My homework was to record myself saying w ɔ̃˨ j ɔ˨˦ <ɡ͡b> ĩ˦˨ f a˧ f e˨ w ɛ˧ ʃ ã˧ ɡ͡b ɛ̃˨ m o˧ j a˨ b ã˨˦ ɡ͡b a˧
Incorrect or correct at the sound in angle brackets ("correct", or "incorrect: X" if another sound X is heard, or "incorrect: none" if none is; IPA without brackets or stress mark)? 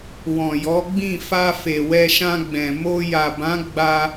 correct